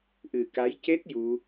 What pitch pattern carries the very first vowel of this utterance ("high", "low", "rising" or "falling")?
low